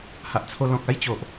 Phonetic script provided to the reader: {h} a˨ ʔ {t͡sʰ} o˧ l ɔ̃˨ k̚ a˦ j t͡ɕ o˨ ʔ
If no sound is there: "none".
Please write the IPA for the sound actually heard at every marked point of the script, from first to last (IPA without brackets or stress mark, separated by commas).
h, t͡sʰ